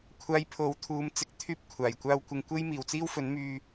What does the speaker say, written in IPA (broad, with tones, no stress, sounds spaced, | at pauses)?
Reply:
kʷʰ aː˧ j pʰ o˨˥ w t̪ʰ uː˨˧ m t͡s ɪ˨˥ k̚ t̪ʰ yː˧ p̚ kʷʰ aː˨˩ j kʷ aː˨ w kʷ ɪ˨ ŋ kʷ e˧ j m iː˨˩ w t͡s iː˥ w f ɵ˨˥ n m yː˧